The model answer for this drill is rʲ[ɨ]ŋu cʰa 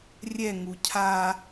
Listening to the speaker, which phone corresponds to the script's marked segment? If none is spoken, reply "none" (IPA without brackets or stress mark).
ɛ